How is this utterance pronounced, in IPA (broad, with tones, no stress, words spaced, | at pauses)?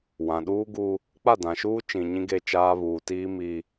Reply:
wã˨ɗuː˦ɡu˦ | k͡pa˦˨dã˨ʃuː˦ t͡ʃĩ˨ɲĩ˦ ɡe˦t͡ʃaː˦ βuː˨tiː˦mi˦